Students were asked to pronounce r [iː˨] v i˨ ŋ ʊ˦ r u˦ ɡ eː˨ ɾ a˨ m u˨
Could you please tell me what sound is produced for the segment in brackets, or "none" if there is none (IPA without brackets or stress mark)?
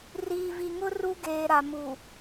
iː˨